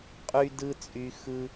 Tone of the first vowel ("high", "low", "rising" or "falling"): high